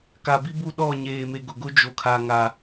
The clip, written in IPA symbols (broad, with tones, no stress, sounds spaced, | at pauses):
k a˨ b i˦ b u˦˨ ɗ ɔ˦˨ ɲ eː˨ m e˨ ɡ ʊ˨ ɡ ʊ˦ d͡ʒ o˨ kʰ a˨ ŋ a˨